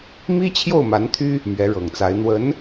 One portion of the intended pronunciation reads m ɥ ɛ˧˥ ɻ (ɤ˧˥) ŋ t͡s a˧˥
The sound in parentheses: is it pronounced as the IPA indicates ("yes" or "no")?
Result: no